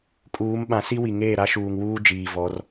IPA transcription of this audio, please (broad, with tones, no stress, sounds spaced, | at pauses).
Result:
kʼ uː˨˦ m ɓ ã˨˦ s i˦ w i˨ ŋ eː˦˨ ɾ a˦ ʃ uː˨ ŋ w uː˦ d͡ʒ iː˨ v ɔ˨˦ r